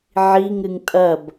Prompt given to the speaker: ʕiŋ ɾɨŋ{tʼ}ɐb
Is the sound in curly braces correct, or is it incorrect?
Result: correct